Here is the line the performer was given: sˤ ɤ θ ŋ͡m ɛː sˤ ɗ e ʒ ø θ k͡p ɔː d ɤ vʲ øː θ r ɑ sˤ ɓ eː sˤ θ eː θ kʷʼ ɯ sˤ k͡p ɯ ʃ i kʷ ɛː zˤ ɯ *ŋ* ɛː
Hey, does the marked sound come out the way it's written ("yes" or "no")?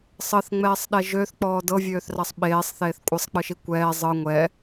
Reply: no